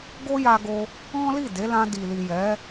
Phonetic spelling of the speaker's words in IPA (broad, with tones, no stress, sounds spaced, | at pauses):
ɡ o˦ j a˧ ɡ o˧ | ɔ̃˦ l i˦˨ d e˨˦ l ã˧ d i˨ l i˨ j ɛ˨˦